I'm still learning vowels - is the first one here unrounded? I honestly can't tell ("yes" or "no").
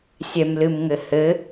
yes